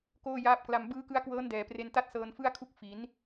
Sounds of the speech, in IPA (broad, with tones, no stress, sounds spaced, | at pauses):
k oː˥˩ j aː˦˥ p̚ k l a˧ m b ɯː˦˥ k ɯ˦˥ a̯ k w ɤː˦˥ n d ɛː˩˦ p r e˧ n t a˥˩ t̚ s ɤː˧ n f ɯ˥˩ a̯ kʰ u˥˩ k̚ f i˩˦ n